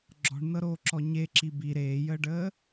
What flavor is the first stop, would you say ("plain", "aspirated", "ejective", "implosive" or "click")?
click